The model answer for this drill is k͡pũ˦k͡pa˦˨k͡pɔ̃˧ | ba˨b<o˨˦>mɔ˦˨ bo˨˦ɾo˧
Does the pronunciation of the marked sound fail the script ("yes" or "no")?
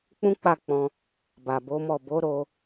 no